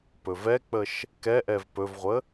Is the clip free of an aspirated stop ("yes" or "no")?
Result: yes